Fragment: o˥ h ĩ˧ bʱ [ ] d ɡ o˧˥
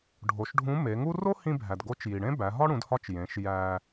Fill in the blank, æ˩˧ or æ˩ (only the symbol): æ˩